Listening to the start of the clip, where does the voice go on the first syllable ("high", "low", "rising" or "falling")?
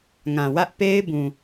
low